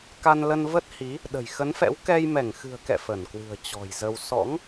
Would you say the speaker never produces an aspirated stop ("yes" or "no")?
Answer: yes